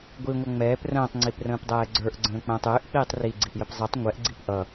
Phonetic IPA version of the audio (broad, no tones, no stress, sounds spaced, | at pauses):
ɡʷ i ŋʷ ʌ ŋ͡m ɛː p r ə̃ː tˤ ŋ͡ǀ i p r ə̃ː p dˤ ɛː ɡ͡ǀ ə˞ ʔ ɡ͡ǀ ə̃ː k͡p ə̃ː tˤ ʏː ʔ k͡p iː tˤ r i ɡ͡ǀ i ʔ j ə p zˤ ɛ tˤ ŋʷ ɛ ʔ ɡ͡ǀ i p ʔ ʌ